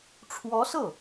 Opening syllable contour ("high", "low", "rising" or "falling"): rising